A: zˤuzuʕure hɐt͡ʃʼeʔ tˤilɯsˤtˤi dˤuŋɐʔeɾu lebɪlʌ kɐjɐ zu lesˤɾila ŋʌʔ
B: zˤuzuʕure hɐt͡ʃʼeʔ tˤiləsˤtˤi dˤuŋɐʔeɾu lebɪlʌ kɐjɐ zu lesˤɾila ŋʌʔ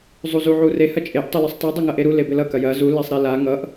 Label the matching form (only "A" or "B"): A